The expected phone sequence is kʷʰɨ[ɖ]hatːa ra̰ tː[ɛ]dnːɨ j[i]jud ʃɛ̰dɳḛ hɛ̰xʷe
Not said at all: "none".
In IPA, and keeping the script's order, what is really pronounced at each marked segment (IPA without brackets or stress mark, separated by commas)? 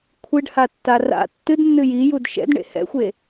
ɖ, ɨ, i